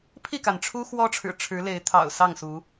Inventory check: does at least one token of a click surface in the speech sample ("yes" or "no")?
no